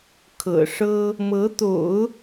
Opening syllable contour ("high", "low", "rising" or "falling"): low